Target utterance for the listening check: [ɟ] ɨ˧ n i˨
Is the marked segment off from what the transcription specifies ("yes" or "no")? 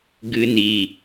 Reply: yes